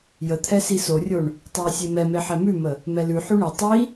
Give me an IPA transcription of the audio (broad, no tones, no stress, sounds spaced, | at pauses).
j ə t̪ʰ ɛ s i s o rʲ o ɳ | tˤ ɛ j sʲ e m ɛ m e ħ ɛ m ʉ m ə | m ɛ l ʉ ħ ʉ ɳ e tˤ i